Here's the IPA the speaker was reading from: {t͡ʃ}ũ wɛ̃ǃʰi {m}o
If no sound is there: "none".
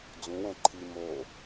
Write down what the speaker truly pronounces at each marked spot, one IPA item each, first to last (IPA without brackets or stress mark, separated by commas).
d͡z, m